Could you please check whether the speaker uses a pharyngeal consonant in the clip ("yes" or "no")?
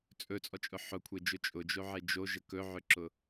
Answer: yes